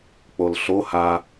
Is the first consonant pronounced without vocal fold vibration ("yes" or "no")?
yes